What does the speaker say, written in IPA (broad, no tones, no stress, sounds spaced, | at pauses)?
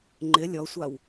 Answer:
ŋ͡ǃ ɪ lʲ ɔ sʷ a w